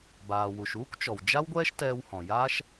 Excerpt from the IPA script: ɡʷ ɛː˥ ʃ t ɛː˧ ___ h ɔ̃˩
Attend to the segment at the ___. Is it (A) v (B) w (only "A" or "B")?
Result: B